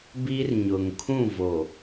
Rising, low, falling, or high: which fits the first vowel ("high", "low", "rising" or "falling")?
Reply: high